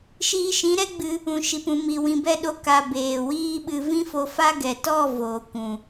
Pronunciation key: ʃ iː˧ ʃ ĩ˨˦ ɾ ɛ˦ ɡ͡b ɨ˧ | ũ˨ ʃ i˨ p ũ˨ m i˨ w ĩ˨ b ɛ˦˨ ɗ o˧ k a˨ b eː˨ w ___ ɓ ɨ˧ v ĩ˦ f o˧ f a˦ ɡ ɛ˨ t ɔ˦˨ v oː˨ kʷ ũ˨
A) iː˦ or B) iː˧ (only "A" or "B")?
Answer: A